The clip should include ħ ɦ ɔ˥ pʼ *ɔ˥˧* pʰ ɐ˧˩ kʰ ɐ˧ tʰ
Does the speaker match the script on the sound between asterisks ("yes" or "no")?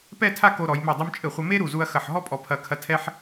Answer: no